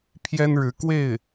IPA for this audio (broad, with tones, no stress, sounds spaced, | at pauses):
pʰ j ɛ˥ n ɻ ɻ̩˧˥ k w e˥˩ ɪ̯